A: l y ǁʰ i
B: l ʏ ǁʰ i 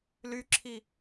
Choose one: A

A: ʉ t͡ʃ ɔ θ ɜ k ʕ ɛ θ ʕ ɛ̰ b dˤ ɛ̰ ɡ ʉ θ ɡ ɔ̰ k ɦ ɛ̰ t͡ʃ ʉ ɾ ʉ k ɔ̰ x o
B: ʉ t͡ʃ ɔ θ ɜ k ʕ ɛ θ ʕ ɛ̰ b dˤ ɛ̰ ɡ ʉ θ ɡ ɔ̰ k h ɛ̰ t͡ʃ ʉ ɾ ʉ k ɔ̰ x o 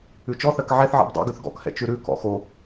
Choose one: B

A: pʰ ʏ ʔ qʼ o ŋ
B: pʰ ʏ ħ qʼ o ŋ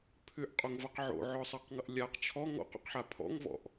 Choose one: A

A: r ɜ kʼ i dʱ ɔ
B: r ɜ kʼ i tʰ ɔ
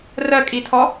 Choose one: B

